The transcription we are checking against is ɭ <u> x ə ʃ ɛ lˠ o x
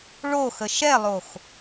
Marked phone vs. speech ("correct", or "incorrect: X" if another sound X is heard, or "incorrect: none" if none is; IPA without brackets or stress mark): incorrect: o